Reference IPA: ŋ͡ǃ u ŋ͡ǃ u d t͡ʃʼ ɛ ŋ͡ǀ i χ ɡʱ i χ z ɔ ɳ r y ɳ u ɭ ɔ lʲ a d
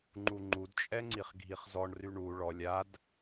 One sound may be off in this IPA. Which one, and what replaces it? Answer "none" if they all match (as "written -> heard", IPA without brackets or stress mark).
none